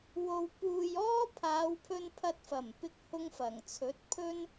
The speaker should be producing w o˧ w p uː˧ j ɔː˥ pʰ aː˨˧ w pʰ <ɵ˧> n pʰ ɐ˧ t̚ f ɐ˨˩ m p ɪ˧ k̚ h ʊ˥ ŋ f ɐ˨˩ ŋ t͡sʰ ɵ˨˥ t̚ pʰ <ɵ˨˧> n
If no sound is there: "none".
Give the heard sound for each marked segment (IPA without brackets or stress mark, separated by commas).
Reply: ɵ˧, ɵ˥